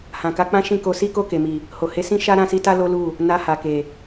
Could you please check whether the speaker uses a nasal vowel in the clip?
yes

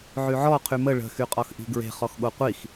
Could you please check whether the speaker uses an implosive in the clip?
yes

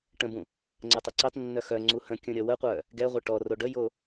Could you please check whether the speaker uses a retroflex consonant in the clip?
yes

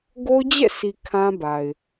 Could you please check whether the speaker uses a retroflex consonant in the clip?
no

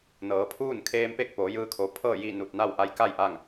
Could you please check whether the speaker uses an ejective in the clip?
no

